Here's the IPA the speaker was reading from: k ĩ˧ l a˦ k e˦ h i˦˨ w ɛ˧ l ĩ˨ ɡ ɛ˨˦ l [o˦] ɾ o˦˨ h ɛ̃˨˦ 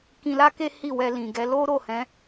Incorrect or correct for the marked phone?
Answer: correct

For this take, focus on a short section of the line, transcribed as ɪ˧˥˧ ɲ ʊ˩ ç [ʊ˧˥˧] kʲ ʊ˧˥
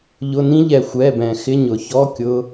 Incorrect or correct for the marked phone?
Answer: incorrect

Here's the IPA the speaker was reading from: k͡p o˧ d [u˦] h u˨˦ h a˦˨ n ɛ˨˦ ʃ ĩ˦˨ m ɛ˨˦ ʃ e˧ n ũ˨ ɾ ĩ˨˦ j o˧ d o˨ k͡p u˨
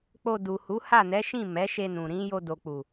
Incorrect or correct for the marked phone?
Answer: incorrect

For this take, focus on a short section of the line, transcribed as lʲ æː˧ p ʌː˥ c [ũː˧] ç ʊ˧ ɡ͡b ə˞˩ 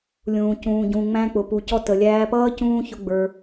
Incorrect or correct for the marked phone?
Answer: incorrect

